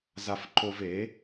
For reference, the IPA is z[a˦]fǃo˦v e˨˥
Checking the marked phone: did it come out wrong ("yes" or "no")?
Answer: no